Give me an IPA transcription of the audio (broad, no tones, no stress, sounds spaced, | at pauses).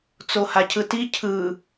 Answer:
t͡s o h a cʰ ɯ t i cʰ ɯ